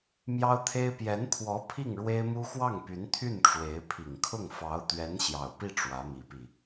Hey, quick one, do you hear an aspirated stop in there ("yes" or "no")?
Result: yes